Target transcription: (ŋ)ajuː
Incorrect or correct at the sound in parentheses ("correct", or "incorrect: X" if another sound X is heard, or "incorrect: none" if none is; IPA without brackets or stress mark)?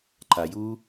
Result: incorrect: ǃ